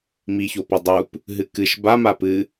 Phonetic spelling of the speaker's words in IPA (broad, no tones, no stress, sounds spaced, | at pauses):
m i ç o p o dˤ u p | ɦ ɨ k ɨ ʃ b a m a p ɨ